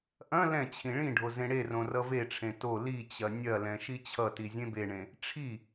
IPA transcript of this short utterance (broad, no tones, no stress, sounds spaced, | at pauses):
ʔ ɐ̃ l ɛ̃ t͡ɕʰ ĩ ɭ ĩ ɖʱ o z ẽ ɽ e r õ r ʌ v e ʈ͡ʂʰ ẽ t o l i t͡ɕ ɐ nʲ ɐ l ɛ̃ ʃ i t͡ɕʰ ʌ t i zʲ ẽ b e ɳ ẽ | ʈ͡ʂʰ i